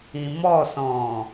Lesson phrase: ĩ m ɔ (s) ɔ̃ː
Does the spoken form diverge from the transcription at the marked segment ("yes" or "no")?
no